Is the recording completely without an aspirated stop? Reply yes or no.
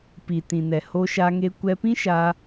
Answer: yes